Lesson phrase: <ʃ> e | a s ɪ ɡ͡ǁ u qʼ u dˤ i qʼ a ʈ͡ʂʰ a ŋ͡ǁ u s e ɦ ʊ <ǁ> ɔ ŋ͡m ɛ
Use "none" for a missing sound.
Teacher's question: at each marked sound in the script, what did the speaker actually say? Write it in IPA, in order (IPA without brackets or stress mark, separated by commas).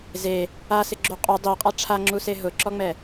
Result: z, ǁ